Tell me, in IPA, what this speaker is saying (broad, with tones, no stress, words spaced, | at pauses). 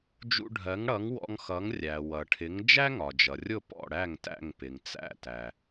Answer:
d͡ʒṵ˧ɖʱɜ˩˥ŋɽʌ˩˥ŋ wɔ̰˧ŋxʌ˩˥ŋ rʲæ˩ wʌ˩ʈʰɪ˩˥ŋ d͡ʒæ˥ŋɒ˩d͡ʒʌ˩rʲʊ˥˩ pɔ̰˥˩ɽæ˥˩ŋtæ̰˥˩ŋ pɪ˩ŋt͡sæ̰˥˩tæ˩